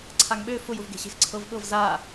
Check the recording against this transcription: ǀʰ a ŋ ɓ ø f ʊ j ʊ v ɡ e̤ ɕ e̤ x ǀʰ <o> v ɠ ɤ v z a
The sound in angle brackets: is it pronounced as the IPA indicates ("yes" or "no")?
no